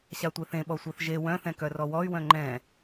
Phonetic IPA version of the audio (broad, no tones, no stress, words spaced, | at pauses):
ɕatʷeθẽ ɓɔsʷœθʒe wœ̃θɛ̃ kœrɔwɔy̯ wœ̃ŋ͡ǃɛ̃